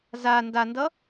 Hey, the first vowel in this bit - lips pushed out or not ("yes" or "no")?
no